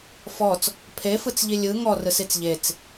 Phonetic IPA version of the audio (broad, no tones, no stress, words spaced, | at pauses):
fɔt͡s | pʰefɯt͡sʎi lʲɯ ŋɔrɯsit͡s ʎet͡s